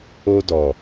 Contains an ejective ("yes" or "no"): no